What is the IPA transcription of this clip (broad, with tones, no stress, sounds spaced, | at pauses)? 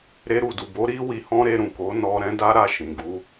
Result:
ɾ e˧ ɾ u˨ d u˨ b o˨˦ ɾ i˦ w i˧ h ɔ̃˦ ɾ e˧ ɾ ũ˨ k o˨˦ n ɔ˧ ɾ ɛ̃˦ d a˦ ɾ a˦˨ ʃ ĩ˨ ɡ u˧